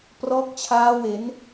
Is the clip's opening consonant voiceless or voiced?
voiceless